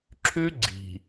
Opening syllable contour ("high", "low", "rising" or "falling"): high